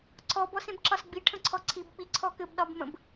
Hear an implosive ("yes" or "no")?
yes